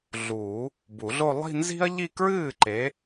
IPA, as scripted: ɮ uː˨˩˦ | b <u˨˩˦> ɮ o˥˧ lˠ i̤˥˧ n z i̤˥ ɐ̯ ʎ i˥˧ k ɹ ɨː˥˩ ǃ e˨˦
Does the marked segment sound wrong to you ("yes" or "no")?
no